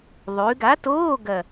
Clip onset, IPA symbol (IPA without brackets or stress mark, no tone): ðˤ